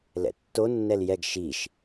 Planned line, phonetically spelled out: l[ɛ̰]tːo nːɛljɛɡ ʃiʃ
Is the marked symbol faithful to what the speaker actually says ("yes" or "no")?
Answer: yes